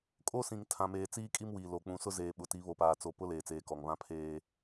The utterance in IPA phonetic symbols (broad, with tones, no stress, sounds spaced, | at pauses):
kʼ o˦ s ĩ˨ ŋ tʰ ã˨ m eː˨ t͡s iː˦ kʼ i˦ m w iː˨ l o˨ k͡p ũ˨ s ʊ˦ z eː˨ ɓ ʊ˨ t i˨˦ β o˨ p aː˨ t͡s o˨ p ʊ˦ l eː˨ t͡s eː˨ k ɔ˨ ŋ β ã˦ pʰ eː˦